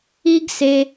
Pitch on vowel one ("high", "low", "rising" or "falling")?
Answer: high